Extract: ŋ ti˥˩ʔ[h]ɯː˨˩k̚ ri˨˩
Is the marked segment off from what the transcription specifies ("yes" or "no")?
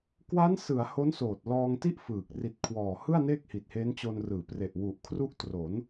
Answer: yes